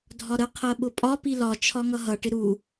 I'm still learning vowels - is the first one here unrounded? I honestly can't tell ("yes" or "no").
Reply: no